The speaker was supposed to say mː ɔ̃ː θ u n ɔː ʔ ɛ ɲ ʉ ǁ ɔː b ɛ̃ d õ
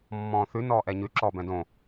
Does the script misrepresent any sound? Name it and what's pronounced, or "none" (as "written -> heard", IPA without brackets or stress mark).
u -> ʉ